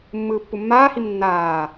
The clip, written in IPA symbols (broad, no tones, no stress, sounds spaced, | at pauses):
mː ɯː pː u mː aː h i m nː aː